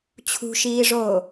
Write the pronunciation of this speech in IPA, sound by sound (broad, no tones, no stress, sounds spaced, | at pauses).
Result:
t͡ɕʰ ṳ ʃ iː ʐ oː